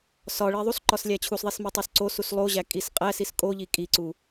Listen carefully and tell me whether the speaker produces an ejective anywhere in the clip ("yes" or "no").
yes